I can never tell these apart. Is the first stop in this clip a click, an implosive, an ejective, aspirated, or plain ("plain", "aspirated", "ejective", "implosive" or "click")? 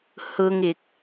plain